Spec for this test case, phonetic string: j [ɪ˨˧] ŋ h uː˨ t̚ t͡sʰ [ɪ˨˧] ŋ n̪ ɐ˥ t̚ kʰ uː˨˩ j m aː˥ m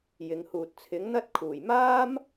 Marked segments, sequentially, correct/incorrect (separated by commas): correct, incorrect